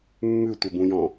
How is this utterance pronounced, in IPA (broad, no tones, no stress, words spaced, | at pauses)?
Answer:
mːʉtʷəbũjɔ̃